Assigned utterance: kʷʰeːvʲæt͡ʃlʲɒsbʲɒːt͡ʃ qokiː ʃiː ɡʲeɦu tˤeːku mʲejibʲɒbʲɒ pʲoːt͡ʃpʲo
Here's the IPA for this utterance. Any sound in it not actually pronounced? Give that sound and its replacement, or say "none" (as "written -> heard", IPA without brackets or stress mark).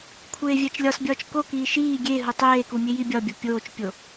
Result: q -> k